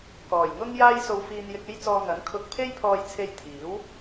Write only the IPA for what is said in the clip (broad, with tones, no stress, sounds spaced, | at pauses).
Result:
k ɔː˨˩ j ŋ ʊ˥ ŋ j aː˥ j s o˧ w f iː˧ n j ɪ˧ k̚ e˥ j t͡s ɔː˧ ŋ ɐ˨˥ n kʰ ʊ˧ k̚ pʰ e˥ j pʰ ɔː˧ j t͡sʰ e˧ j t̪ʰ iː˨˥ w